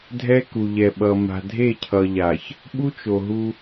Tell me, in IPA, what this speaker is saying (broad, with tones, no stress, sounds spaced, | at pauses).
dʱ ɛ˦ k u˨ ʎ ɛ˨ ɓ ʌ˨ m a̤˨ dʱ e˦˨ cʰ ʌ˨ ʎ a˨ ç | ɓ u˦ t͡ʃ o˨ ɦ u˦